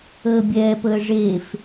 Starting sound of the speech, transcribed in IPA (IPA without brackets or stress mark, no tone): əː